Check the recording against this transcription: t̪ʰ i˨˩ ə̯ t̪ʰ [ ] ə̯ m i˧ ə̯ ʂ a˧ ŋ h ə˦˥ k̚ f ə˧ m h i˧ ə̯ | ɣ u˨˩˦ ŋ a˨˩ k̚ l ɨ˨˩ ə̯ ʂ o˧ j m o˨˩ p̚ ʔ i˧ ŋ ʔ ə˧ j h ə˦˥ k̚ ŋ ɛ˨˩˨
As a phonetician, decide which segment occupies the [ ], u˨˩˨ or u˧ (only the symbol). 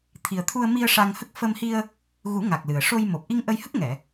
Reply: u˧